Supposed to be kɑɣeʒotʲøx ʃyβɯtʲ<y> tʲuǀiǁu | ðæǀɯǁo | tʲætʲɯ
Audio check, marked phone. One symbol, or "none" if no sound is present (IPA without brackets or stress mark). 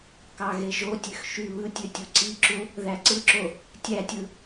ø